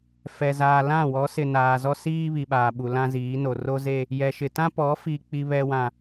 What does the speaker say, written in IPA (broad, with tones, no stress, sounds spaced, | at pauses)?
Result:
f ɛ˨ z aː˨ l ã˦˨ w ɔ˨˦ s ɪ˨ n aː˨ z ɔ˦ s iː˦ β i˨ ɓ aː˨ ɓ u˨ l ã˦ z iː˨˦ n o˨ r o˦ z e˦ | j ɛ˨ ʃ ɪ˨ t ã˦ p ɔ˨˦ f i˨ k͡p i˨ β ɛ˨ w ã˨